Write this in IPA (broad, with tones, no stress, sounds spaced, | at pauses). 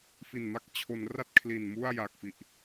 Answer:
f i˨˩ n m a˥˩ k̚ t͡ɕʰ o˩˦ n r a˥˩ t̚ kʰ l i˨˩ n m u˥˩ a̯ j a˨˩ k̚ f i˨˩ ʔ